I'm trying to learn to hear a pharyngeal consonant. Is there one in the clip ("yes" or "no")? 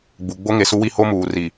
no